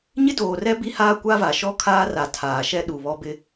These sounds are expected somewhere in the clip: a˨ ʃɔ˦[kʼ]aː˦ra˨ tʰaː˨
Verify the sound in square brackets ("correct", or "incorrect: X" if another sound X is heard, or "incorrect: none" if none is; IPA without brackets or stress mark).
incorrect: kʰ